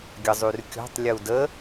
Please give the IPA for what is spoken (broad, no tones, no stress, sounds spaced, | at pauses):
ɡʲ ə zˤ y r kʲ ɔ̤ tˤ lʲ ə u̯ d ə